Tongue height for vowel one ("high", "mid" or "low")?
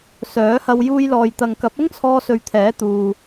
mid